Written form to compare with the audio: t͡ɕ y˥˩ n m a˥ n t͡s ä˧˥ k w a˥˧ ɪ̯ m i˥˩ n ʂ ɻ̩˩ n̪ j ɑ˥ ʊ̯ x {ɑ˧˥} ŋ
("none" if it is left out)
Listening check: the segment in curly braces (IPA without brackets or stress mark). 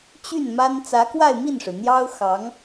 ɑ˧˥